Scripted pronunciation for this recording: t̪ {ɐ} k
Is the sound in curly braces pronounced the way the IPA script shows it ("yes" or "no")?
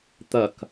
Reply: yes